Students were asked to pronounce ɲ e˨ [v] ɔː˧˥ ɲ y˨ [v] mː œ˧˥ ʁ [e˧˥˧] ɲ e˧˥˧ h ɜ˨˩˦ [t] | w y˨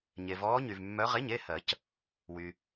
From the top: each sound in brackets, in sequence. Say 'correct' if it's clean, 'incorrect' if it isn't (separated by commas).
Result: correct, correct, correct, incorrect